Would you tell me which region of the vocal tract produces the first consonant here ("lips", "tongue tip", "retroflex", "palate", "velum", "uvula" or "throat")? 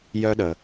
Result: palate